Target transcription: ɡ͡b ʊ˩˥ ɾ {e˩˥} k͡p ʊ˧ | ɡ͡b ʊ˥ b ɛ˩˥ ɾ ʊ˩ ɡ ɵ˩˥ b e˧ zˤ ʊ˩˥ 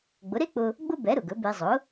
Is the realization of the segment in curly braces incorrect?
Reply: yes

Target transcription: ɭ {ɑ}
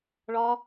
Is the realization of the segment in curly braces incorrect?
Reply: yes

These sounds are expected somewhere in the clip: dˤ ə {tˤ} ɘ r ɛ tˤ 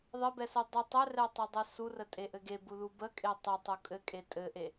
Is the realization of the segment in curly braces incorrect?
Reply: no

